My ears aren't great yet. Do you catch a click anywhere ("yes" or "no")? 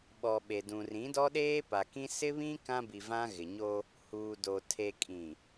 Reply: no